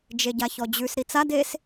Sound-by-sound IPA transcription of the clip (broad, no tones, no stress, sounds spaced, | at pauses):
d͡ʒ e ɟ a ç ɔ d͡ʑ ʉ s ɾ i t͡s a d e s